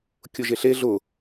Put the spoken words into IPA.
kʲʊʒeɬe ɮʊ

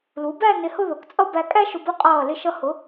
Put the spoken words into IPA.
lu˩˧bæ˥˧ nɪ˧hʊ˥˧ðʊ˩˧kt͡sʼʌ˥˧ bæ˧kʼæ˥ʃʊ˧b ʊ˥˧qʼʌː˧˩ lɪ˧˩ʃʌ˧hʊ˩˧

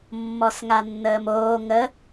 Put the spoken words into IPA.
mːɔsŋanːəːmoː ŋə

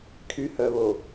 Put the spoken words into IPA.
kʰyhœβo

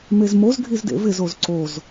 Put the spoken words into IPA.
mezmoz ɡʱizdḛvɪz ozǀoz

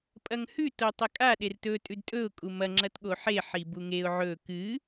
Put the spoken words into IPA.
pʼɐŋhʉ totˤɐkʼa ɗertɵ tʼʉdtʼɵʊ̯ kʼumɐ ŋ͡ǁɐtɠoħe ħibuŋeʊ̯ ʕɵ kɨ

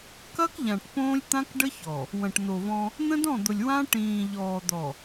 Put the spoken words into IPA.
kɐ˦kʎã˨ʈ põː˦lʲt̪ã˦kɖə˦çɔ˨ | wɐ̃˨ʈn̪o˨vɔ̃˦ | n̪ə̃˦dɔ̃˦˨d̪ʊ˨lʲ wã˦ ʈĩː˨ʎɔː˨d̪ɔ˨

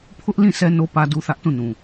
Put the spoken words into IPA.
pʰʊ˦ʔlĩ˦˨ sʰɛ˦no˦ pä˦du˦ θä˦ʔtũ˦˨nũ˨

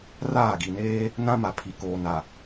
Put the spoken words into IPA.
raː˦˨ɡi˨neː˦ | nã˦ma˨pʰi˨koː˨ na˨

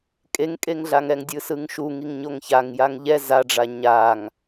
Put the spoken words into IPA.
kʼeŋkʼeŋɮaŋɛŋ dʲɯsɯŋʃu ŋiŋɲoŋçaŋ jaŋʎɛ zaɖ͡ʐa ɲaŋ

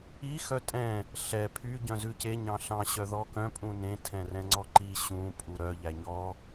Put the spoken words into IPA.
i xœtʼɛ̃ | ɬɛ pʰy ɟœ̃zʉce ɲɑ̃ɬɑ̃ ɕœðɔkœ̃ pʼũnẽ tʰɛ̃rɛ̃ŋ͡ǀɔǃi ɕũ pʼuɾœ ʎæɲɔ

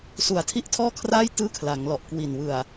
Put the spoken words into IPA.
su˨˩a̯tʰi˥˩ʔtʰɔː˥˩kʰraː˥˩j tɯː˥˩kʰla˩˦ŋlɔ˨˩ʔkwi˨˩n wɯ˨˩a̯

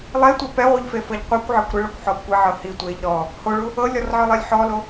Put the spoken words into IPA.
lˠetʷɛ pɛʁʷɯʎ fefɤʎqʷɯkʷʕɛkʷ ɾɯɭɔkʷ ħɔkʷeʕɤ hi tʷeʎ ɾɔ | hoɭu | ɤlʲɔr ʕɤlˠilʲħɔlo

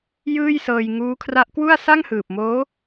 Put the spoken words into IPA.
jɯː˥˩jsɤː˧j ŋuː˦˥kʰra˦˥ʔkwu˥˩a̯ sa˥˩ŋhɯː˨˩p̚moː˦˥

